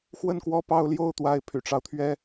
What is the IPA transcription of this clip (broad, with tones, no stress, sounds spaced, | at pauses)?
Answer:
x w ə˥˧ n k w ɔ˥˧ p ɑ˥˧ ʊ̯ l j o˥˩ ʊ̯ t̪ w a˧˥ ɪ̯ pʰ y̰˨˩ ʈ͡ʂ ɑ˦ ʊ̯ t̪ʰ ɥ ɛ˥